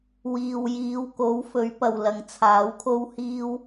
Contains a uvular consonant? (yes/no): no